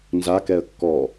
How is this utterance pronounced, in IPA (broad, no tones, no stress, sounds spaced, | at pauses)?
n z a k ɛ ə̯ kː ɔ